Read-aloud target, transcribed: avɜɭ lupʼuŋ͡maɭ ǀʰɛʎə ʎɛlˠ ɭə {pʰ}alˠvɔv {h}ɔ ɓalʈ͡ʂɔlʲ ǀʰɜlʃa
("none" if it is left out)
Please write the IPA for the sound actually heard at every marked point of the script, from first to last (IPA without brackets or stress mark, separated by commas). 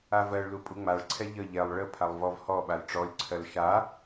pʰ, h